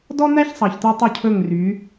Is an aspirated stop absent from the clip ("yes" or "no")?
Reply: no